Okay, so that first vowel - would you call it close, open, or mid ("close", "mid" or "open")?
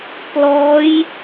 mid